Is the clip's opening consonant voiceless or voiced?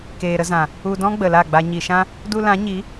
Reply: voiceless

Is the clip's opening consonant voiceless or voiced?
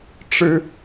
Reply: voiceless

